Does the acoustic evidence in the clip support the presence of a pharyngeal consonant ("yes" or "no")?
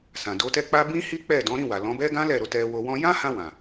no